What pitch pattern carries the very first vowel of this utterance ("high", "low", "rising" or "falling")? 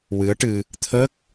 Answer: rising